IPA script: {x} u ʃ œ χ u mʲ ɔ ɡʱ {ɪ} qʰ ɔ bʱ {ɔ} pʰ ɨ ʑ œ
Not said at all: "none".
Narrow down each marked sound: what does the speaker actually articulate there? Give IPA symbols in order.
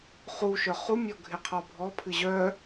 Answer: χ, ɪ, ɔ

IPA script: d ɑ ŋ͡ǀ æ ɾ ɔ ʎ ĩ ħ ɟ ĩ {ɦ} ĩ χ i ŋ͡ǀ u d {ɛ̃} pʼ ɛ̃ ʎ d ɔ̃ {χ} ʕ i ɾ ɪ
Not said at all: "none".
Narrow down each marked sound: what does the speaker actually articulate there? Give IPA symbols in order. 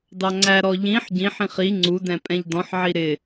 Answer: ħ, ɛ̃, ħ

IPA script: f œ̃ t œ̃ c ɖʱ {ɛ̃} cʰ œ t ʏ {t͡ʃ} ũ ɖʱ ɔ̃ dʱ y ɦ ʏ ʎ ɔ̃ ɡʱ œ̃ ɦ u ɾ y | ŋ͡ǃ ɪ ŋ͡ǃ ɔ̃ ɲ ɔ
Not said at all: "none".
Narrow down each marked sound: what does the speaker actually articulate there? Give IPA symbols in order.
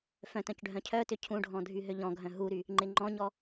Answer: œ̃, cʰ

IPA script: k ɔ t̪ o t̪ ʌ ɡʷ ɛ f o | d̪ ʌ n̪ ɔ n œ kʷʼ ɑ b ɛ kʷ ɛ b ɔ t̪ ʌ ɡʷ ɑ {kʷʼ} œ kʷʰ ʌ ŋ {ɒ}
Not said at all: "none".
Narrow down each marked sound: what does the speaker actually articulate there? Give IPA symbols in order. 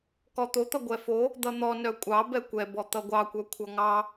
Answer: kʷ, ɑ

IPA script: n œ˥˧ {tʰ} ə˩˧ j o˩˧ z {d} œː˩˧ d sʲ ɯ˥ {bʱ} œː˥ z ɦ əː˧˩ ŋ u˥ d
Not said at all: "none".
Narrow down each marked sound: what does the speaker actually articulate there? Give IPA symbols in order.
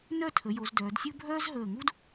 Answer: tʰ, d, bʱ

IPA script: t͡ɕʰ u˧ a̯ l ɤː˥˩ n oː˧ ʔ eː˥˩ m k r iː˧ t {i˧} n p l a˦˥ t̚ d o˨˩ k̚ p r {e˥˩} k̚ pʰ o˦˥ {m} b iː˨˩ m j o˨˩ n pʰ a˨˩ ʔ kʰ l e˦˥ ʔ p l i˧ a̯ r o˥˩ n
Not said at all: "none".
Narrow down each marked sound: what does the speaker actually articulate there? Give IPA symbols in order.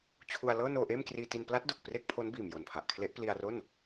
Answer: i˧, e˥˩, n

